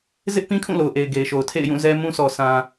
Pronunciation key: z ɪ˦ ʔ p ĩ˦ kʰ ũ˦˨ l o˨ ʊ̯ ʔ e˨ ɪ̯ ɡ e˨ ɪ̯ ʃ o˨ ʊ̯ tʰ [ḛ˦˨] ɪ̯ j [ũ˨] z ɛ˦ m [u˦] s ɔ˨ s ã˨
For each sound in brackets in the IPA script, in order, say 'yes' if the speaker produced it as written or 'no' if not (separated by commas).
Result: yes, no, no